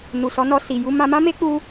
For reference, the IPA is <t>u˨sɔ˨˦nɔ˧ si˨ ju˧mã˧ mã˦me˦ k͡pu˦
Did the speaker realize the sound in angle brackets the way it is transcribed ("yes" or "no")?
no